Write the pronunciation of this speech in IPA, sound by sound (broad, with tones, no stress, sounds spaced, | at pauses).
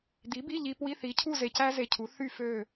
d̪ i˨˥ b i˧˥˧ ʎ i˧ p w i˧˥˧ θ i˨˥ cʰ u˥˧ z e˧ c æ˥ z e˧ cʰ u˨˥ θ y˥˧ f ø˥˧